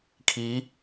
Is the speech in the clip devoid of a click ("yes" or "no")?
yes